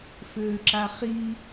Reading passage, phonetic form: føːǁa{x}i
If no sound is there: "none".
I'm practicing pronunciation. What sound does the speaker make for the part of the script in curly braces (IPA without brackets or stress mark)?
χ